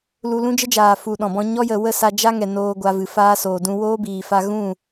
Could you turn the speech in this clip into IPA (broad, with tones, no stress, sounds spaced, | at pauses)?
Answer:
l u˧ l ũ˦ d͡ʒ ə˦ d͡ʒ aː˨ f u˨ ɗ ɔ̃˨ b ɔ̃˧ ɲ ɔ˦ j ə˨ w ə˦˨ s a˧ d͡ʒ a˦ ŋ ɛ˨ n oː˧ ɡʷ a˧ v ɨ˨ f aː˦ s oː˨ d ũ˦ w oː˦ b iː˨ f a˧ ɣ ũ˦˨